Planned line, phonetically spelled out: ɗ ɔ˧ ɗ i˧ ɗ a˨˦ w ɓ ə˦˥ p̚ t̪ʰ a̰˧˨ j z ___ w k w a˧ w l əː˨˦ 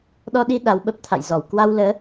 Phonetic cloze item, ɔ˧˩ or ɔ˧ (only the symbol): ɔ˧˩